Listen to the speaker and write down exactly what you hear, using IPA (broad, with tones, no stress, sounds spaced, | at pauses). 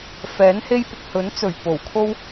f ɛː˨˥ n h e˥ j p ʊ˨ k̚ h ɵ˨˥ n t͡s ɵ˨˩ ɥ p o˨˩ w kʰ o˥ w